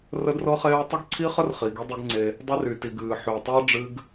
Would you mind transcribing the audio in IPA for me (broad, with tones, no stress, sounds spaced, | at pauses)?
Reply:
r ə˦ d r ɤ˦ χ eː˦ w tˤ ə˦ ɡ ǀʰ i˦ χ ə˦ r χ i˨ ɡ i˦ dˤ i˦ ɡ ŋ͡ǀ e˦ | dˤ i˦ r y˨ t i˨ ɡ ɨː˨ ħ y˨ w tˤ əː˦ ɖ͡ʐ ɨ˦ ɡ